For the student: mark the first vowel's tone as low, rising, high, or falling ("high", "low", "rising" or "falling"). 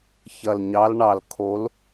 low